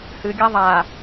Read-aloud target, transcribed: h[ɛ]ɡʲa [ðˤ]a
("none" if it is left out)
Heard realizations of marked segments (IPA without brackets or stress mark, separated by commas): ɨ, ðˤ